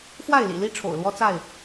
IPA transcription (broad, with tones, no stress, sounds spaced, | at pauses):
x w a˥˨ ɪ̯ l ḭ˨˩ l i˦ ʈ͡ʂʰ o̰˨˩ ʊ̯ l w ɔ˦ t͡s a˥˨ ɪ̯